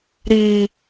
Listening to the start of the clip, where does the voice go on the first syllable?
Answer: low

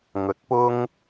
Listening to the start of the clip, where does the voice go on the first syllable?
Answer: low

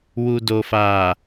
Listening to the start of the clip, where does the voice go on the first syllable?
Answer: low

